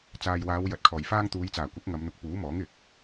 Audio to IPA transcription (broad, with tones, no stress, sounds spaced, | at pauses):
t͡s aː˨ j w aː˨˧ w j ɐ˨ t̚ kʰ ɔː˨˩ j f aː˥ ŋ t̪ uː˨˧ j t͡s aː˨˩ kʷ ɐ˨˥ k̚ ŋ ɐ˨˧ m n̪ ʊ˨ k̚ p uː˨˥ m ɔː˨˥ ŋ ɪ˨ k̚